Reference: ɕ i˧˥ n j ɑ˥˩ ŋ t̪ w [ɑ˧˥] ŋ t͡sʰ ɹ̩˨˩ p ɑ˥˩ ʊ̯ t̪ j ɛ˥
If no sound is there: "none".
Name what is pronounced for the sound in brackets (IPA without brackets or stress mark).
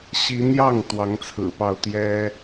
ɑ˧˥